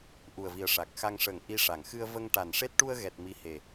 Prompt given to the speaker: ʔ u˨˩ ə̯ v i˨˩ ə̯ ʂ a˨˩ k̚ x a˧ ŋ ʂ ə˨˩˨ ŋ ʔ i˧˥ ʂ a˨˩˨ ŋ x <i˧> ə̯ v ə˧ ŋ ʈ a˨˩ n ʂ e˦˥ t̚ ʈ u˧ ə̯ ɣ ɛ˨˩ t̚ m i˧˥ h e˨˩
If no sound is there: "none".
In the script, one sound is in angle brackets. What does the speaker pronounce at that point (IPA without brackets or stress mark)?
ɨ˧